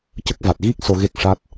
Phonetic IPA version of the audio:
c ə˦˥ k̚ v a˨˩ t̚ ɣ i˦˥ k̚ s o˧ ɣ e˦˥ k̚ ʂ a˦˥ t̚

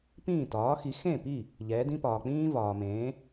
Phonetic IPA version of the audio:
p ĩː˥˩ t ɒː˩˥ x i˩˥ x ẽ˥˩ p i˥˩ | ʎ ɛː˩˥ d ĩ˥ p ɒː˩ k͡p ĩː˥ v ɒː˩ m ẽː˩˥

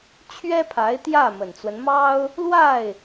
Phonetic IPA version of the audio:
t͡ɕʰ ɥ ɛ˥ pʰ a˧˥ ɪ̯ t̪ j ä˥˩ m ə˨˩ n t͡s w ə˦ n m ɑ˥ ʊ̯ | l w a˥˩ ɪ̯

